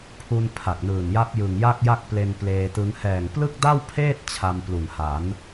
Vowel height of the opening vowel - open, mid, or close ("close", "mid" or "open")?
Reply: close